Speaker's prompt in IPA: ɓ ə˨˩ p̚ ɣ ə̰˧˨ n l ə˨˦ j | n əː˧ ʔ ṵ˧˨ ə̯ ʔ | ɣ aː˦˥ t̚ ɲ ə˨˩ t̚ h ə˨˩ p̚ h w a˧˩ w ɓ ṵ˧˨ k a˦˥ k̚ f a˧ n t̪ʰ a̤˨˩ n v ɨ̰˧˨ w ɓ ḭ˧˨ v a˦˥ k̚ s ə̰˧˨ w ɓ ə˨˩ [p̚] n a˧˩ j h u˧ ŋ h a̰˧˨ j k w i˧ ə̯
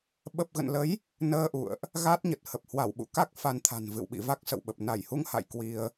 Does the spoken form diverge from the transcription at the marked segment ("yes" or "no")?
no